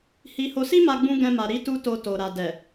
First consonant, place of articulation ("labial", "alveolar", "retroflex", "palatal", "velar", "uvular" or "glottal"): glottal